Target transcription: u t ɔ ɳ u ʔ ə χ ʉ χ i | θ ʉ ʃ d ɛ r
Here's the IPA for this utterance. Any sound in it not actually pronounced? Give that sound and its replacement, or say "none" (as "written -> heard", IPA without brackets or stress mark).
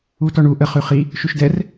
θ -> ʃ